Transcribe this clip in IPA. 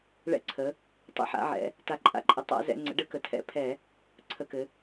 ɭ ɛ̰˧˩˧ ǀʰ ə˩˧ | tˤ ə̰˧˩˧ ħ a̰˩˧ ʕ ɛ̰˩˧ | t a˩˧ ǃʼ a̰˩˧ ǃʼ ə˩˧ tˤ a̰˧˩˧ z ɛ̰˩˧ ŋ͡ǀ ə̰˩˧ ɖ ɘ˧˩˧ k ə˩˧ tʰ ɛ̰˧˩˧ pʰ ɛ˧˩˧ | ǀʰ ə˩˧ k ɘ˩˧

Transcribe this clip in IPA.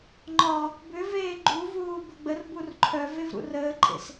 ŋ͡ǃ ɒ | b ʏ v eː ɡ͡ǃ u v uː b ə ɡ͡b ə r b u r ǃʰ œ v e v ɾ ṵ r əː ǃʼ ḛ s

